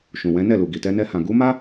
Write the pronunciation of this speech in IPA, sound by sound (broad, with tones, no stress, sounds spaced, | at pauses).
ʃ ũ˨ w ɛ̃˨˦ n ɛ˦˨ l u˨ ɡ i˨ t ɛ˧ n ɛ˧ h ã˨ ɡ u˨˦ m a˦